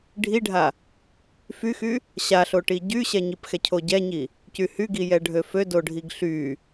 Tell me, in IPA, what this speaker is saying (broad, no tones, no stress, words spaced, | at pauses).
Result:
ɖʱiɖʱa | fyxy | ɕaɬoʈi ɟyɕɛɲipxɛ cʰoɟɛɲi | cyhyɡi jɛɖʱøfø doɖʱiɡɬy